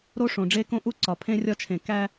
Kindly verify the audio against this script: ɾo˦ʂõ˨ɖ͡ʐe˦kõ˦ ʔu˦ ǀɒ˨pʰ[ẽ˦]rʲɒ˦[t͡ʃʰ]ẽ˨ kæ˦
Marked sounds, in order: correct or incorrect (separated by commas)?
correct, correct